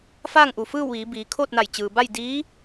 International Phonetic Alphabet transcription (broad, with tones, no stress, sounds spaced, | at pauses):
f aː˥˨ ŋ ʔ u˩ f ɯː˥˨ w ʋ iː˩˧ b iː˩˧ kʰ oː˥˨ t̚ n a˧˩ j t͡ɕ ɯː˩ b a˥˨ j d iː˧˥